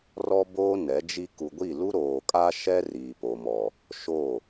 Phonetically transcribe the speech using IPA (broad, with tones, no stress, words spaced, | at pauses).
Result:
rɔ˦boː˦ nɛ˨˦d͡ʒi˦ ku˨ɡʷi˦˨lu˦ ɾoː˨kʼa˦ʃɛ˦ riː˨po˨mɔ˨ | ʃo˦˨